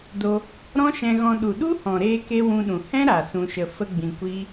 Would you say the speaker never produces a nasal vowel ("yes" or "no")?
no